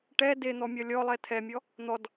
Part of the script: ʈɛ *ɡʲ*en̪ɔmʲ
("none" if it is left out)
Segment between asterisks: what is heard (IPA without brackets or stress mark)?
d